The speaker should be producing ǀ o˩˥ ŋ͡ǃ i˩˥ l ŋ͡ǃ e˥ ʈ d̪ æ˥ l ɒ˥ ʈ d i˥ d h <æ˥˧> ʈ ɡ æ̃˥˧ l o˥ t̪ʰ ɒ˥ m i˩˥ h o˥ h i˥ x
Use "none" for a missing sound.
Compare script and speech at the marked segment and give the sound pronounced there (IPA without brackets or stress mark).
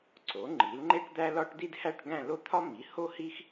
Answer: æ˥˧